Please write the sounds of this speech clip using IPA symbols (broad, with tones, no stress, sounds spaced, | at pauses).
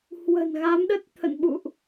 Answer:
h w ə̤˨˩ n ɣ a˨˦ m ɗ ə˦˥ t̚ t̪ʰ ə̰˧˨ n ɓ ṵ˧˨ ʔ